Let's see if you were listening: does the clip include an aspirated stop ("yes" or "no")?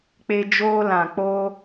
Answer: no